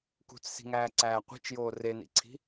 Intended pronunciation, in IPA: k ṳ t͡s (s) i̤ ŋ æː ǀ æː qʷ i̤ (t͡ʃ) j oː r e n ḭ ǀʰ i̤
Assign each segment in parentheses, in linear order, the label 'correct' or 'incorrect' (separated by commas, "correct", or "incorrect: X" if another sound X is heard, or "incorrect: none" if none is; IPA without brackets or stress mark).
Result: correct, correct